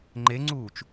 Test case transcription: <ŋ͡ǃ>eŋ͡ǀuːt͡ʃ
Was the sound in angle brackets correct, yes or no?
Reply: yes